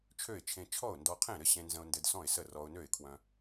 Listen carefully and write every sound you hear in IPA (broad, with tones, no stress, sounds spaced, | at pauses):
t͡ʃʰ ø˥˩ ɪ̯ t͡ʃʰ ẽ˧ t͡ʃʰ ɔ˥˩ ʊ̯ n d ɔ˧ qʰ ẽ˥˩ ɾ ɘ˥˩ ɕ ẽ˧ n z ə̃˧ ʊ̯ n d ɘ˧ d s ɔ̃˥˩ ɪ̯ s ə˥˩ r ɔ˧ ʊ̯ n ø˥˩ ɪ̯ kʰ w œ̃˧